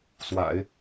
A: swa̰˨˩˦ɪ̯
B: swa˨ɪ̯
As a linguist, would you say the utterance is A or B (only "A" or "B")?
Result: A